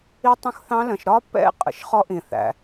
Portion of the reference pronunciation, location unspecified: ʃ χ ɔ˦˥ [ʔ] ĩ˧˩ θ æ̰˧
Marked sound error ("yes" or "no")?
no